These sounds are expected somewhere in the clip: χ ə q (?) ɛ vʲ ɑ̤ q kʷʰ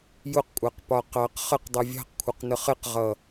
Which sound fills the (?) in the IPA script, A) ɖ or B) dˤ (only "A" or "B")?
B